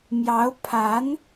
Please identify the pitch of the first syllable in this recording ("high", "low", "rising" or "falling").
rising